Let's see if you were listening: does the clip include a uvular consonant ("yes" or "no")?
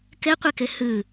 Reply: yes